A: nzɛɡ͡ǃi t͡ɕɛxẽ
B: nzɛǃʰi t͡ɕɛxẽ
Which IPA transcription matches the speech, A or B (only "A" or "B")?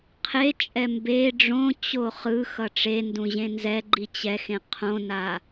A